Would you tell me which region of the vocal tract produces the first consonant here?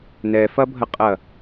tongue tip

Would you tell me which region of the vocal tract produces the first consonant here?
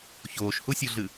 palate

